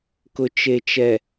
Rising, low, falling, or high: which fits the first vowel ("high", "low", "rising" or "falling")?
low